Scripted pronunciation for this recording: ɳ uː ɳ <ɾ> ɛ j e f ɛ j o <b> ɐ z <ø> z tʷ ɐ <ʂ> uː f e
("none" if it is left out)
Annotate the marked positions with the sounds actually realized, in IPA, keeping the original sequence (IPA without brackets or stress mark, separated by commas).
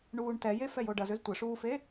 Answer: t, ɖ, ø, ʂ